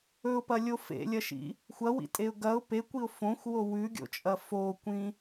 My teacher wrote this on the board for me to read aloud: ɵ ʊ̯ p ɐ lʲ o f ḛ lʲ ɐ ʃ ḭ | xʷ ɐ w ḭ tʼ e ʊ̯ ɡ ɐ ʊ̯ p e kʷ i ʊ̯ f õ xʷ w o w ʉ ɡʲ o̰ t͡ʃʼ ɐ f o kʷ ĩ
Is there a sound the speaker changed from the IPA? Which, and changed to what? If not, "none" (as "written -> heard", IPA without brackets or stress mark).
none